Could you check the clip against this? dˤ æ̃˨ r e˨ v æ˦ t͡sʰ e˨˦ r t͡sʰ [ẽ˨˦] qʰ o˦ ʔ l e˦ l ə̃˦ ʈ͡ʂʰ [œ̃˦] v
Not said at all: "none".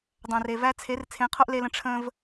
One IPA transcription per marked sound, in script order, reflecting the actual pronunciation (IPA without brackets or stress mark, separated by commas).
ẽ˨˦, ə̃˦